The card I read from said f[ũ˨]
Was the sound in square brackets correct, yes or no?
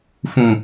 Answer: yes